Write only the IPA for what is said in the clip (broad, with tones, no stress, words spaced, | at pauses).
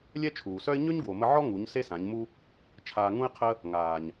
lʲɛ˦t͡ʃʰuː˨sœ˦ɪ̯ ɲø˦ɲɡwo˨mə˧ ʕɔ˦ ŋu˨˦ɲse˦sã˨˦ɲmu˦ | t͡ʃʰaː˧ŋũ˦ɪ̯qʰə˦ | ŋaː˨ɲ